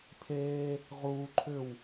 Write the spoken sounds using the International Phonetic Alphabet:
pʰ eː | ʁ uː ǃʰ ʏ w

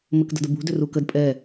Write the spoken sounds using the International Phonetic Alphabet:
m ə k d ə̤ d ə b ṳ d ʏ r u k ə d pʼ ɛ

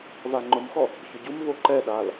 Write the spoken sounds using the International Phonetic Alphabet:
v a ŋ͡ǃ ʊ m x ɔ | ç ʊ ɟ u m v o ǃ ɛ ɗ a l

